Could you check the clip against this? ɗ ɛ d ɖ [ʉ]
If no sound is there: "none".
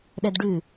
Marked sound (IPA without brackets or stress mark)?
ʉ